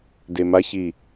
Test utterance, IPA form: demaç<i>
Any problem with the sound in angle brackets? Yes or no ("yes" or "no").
no